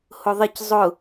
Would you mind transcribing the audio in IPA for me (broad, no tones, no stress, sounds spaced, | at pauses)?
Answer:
h ʊ ðˤ ɪ c zˤ ʊ